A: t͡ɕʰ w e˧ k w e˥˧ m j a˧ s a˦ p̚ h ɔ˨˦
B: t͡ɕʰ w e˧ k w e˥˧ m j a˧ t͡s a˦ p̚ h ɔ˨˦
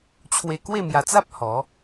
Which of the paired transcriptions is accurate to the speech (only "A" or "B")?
B